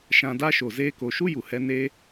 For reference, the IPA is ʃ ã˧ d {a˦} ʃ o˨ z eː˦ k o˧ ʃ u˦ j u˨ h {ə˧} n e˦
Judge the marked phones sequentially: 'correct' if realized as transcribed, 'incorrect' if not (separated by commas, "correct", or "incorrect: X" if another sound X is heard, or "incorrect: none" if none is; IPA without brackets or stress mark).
correct, incorrect: ɛ˧